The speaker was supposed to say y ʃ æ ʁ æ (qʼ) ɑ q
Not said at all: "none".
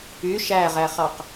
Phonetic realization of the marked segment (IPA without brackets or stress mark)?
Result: χ